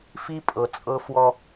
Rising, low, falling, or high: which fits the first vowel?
high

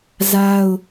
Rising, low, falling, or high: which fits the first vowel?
high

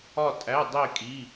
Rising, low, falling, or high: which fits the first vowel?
falling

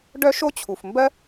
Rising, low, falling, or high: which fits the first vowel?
high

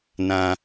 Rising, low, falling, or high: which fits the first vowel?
high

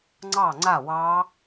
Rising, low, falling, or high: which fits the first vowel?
falling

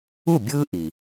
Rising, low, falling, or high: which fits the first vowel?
falling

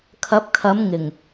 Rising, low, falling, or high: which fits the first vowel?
rising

